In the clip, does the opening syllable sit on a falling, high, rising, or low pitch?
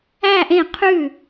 falling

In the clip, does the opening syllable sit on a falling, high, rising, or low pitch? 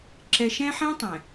high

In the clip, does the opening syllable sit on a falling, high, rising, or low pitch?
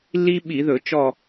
high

